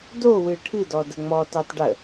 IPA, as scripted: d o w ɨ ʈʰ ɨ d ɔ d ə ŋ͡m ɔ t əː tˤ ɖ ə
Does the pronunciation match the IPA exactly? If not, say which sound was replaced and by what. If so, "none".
none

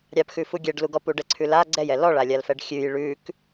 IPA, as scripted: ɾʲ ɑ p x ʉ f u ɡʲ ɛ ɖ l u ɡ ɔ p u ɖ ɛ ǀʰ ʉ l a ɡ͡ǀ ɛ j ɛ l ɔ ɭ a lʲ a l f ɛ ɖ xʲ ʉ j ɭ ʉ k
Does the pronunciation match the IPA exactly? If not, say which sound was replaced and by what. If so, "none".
none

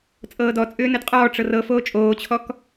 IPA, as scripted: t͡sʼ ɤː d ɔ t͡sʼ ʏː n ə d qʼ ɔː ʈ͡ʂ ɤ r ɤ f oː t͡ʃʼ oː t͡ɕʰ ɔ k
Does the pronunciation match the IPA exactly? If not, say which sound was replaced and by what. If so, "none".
none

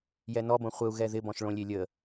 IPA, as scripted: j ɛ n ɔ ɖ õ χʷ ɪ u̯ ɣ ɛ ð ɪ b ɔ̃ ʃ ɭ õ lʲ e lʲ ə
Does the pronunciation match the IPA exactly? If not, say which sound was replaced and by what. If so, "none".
ɖ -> b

